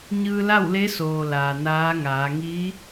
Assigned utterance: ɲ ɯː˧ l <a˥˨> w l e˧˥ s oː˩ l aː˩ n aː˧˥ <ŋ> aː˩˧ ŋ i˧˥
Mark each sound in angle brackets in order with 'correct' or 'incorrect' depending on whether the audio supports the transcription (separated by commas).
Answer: correct, correct